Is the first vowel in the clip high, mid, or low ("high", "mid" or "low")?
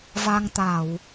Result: low